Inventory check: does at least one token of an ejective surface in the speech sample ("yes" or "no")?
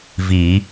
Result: no